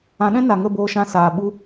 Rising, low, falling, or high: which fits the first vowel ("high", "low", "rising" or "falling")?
rising